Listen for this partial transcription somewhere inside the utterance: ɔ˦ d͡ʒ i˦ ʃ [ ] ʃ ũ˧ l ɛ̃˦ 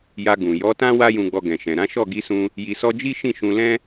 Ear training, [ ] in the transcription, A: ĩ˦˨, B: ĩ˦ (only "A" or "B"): A